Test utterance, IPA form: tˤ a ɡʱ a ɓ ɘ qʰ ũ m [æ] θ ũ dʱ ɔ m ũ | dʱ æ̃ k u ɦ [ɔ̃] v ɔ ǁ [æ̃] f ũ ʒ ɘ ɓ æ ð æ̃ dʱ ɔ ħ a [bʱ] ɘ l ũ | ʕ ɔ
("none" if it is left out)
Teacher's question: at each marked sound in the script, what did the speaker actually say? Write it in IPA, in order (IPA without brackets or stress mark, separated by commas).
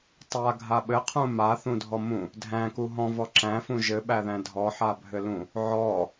a, ɔ̃, æ̃, bʱ